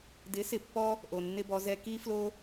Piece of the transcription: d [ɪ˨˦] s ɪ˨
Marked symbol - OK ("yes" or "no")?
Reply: yes